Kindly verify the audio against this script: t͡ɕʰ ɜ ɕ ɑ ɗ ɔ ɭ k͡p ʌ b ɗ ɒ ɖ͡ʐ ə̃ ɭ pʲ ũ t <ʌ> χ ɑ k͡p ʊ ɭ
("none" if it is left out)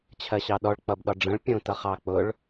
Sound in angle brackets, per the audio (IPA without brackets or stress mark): ʌ